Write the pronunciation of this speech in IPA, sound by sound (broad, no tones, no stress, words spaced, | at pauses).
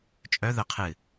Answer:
t͡ʃʼœ ðə qʰɨ